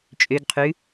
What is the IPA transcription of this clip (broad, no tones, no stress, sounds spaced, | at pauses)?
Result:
t͡ʃʼ ø ɡ qʰ ʉ